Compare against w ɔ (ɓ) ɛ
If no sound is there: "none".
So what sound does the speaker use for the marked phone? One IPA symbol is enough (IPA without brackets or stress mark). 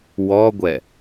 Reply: ɡʷ